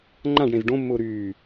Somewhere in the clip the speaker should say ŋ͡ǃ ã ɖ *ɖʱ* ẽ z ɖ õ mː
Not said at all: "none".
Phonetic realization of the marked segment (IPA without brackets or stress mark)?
ɽ